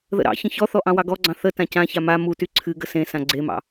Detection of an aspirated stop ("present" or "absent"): present